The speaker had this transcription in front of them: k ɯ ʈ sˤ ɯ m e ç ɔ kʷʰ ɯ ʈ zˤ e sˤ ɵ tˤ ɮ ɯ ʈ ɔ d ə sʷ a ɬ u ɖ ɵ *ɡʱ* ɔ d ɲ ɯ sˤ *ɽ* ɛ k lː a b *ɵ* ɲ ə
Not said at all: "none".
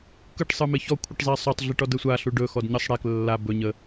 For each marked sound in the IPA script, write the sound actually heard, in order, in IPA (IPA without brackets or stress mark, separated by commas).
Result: x, ɽ, ɵ